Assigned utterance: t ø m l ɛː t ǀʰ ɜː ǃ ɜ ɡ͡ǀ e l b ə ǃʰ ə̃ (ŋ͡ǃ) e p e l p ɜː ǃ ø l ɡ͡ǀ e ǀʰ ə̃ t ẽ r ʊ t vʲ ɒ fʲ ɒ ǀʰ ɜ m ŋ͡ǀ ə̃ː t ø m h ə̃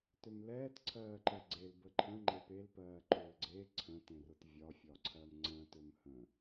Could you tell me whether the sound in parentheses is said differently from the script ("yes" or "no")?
no